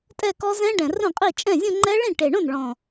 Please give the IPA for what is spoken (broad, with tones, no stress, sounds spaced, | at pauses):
tʼ ɛ˥˧ k ɔ˦˥ z ɛ̃˦˥ ɖ ɛ̃˨˩ r õ˥˩ qʼ i˥˩ t͡ʃʼ ɛ̃˥˩ zʲ õ˥˧ ŋ͡ǃ ɛ˦˥ ɭ ĩ˥˩ ʈ e˨˩ ɳ õ˥˩ n ɭ ɔ̃˨˩